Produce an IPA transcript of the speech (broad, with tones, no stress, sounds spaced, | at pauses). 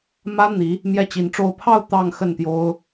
m ä˥ n̪ i˧˥ | m j ɛ˥˩ t͡ɕ i˧˥ n ʈ͡ʂ o˥˧ ʊ̯ pʰ ɑ˥˧ ʊ̯ t̪ ɑ˥˧ ŋ x ə˥˩ n t̪ j o˥ ʊ̯